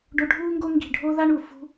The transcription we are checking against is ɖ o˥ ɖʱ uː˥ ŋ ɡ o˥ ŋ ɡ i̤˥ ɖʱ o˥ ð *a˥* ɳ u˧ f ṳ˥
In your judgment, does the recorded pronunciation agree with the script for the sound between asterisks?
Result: yes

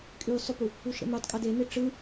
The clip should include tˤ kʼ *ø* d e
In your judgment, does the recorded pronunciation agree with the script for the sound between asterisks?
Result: yes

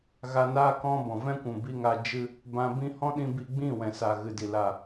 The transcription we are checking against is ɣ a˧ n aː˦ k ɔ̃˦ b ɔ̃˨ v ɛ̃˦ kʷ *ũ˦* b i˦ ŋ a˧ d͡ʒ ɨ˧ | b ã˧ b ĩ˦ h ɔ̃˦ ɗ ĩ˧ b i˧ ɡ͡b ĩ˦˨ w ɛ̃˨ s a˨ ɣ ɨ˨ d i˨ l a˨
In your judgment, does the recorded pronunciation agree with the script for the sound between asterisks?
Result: no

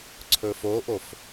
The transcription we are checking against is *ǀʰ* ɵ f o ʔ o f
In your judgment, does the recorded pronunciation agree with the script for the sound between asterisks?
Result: yes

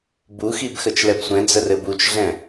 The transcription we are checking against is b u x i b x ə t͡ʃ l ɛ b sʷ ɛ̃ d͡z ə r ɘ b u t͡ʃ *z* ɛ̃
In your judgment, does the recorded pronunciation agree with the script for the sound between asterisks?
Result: no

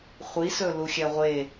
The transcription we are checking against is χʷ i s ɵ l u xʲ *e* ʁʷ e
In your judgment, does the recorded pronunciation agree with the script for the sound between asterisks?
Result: no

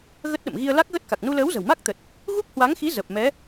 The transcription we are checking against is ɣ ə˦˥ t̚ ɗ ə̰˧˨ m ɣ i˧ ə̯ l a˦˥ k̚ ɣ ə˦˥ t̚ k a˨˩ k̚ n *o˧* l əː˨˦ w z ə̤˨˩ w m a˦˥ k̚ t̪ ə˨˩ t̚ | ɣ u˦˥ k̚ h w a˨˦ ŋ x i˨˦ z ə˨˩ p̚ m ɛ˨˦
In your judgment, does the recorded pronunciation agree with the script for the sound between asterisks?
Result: no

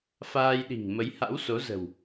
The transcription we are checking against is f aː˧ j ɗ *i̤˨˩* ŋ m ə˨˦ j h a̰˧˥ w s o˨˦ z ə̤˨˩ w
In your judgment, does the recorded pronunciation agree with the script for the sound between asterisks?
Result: yes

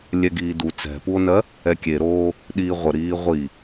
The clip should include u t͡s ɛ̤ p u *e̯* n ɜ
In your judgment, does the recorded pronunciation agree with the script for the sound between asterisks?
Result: no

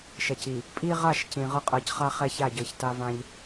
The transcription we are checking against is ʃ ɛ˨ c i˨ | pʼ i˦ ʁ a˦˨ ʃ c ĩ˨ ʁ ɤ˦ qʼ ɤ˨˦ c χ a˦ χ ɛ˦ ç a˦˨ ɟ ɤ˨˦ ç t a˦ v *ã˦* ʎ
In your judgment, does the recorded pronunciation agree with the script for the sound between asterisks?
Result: yes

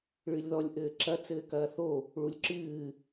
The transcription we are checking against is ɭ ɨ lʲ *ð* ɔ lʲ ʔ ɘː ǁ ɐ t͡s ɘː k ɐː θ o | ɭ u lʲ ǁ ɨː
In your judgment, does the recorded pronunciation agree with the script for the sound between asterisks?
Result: yes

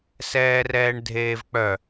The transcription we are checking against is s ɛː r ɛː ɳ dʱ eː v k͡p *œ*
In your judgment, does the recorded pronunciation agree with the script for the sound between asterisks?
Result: yes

